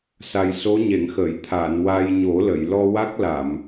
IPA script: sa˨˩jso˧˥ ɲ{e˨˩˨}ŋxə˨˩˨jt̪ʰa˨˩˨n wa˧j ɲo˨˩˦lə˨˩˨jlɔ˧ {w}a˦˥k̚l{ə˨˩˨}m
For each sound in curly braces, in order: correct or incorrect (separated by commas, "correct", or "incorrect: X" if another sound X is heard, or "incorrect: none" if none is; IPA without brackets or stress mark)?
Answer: correct, correct, incorrect: a˨˩˨